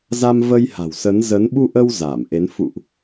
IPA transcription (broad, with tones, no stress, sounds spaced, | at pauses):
z a˧ m v ə˧ j h a̤˨˩ w s ə˨˦ n z ə˨˦ n ɓ u˧ ʔ ə˧ w z aː˧˩ m ʔ e˨˦ n f ṵ˧˨ ʔ